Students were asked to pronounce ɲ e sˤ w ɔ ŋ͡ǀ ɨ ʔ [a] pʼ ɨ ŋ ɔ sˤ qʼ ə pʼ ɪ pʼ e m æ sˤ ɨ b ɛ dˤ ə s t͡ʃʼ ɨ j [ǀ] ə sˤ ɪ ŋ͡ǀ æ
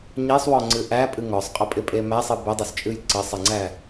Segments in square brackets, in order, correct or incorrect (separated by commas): incorrect, correct